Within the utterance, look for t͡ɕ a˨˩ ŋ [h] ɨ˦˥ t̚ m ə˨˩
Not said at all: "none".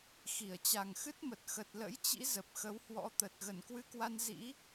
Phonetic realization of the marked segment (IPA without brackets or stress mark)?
x